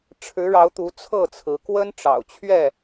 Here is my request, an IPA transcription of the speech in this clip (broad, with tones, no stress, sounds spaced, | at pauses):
ʈ͡ʂʰ ɻ̩˨˦ ɻ ɑ˨˦ ʊ̯ t̪ u˨˦ t͡sʰ ɤ˥˨ t͡sʰ ɹ̩˨˦ k w ə˦ n ʈ͡ʂ ɑ̰˨˩ ʊ̯ t͡ɕʰ ɥ ɛ˥˨